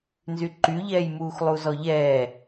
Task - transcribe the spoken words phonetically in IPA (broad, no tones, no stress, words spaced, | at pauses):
nzyǃyʎɛːjmuːx lˠuzɔʎɛː